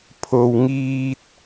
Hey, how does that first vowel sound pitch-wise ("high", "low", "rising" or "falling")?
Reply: low